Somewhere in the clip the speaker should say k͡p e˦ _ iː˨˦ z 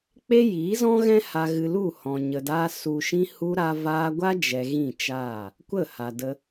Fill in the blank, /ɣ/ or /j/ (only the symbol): j